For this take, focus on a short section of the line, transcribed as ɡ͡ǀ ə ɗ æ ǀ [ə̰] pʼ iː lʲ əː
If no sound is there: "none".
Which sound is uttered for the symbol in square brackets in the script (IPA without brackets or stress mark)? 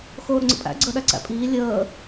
æ̰